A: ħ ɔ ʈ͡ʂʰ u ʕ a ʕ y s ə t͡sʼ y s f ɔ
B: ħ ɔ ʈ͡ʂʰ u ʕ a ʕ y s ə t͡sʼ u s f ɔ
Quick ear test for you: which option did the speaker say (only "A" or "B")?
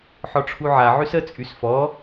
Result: A